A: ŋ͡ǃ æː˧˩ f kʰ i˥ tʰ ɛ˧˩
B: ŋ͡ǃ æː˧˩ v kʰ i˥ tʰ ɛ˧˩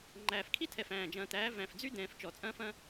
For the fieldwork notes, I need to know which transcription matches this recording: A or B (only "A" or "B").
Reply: A